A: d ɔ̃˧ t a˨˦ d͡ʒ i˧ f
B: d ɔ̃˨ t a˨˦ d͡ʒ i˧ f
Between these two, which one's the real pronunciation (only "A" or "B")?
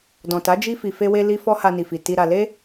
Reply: B